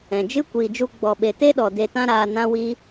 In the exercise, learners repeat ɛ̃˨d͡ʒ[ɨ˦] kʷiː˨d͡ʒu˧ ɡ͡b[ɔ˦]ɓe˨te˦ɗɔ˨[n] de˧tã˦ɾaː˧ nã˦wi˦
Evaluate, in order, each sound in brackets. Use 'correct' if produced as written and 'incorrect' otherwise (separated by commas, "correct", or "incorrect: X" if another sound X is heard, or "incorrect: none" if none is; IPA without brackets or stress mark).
correct, incorrect: ɔ˨, incorrect: none